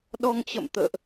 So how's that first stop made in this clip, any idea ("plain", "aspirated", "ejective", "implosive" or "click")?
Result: implosive